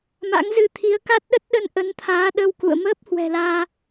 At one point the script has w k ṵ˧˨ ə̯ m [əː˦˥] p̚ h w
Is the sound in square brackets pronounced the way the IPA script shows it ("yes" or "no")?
yes